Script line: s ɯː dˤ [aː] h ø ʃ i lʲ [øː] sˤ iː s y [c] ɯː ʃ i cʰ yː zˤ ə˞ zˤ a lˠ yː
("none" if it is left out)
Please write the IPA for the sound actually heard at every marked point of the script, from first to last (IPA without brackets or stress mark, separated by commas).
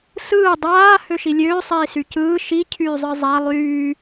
aː, øː, c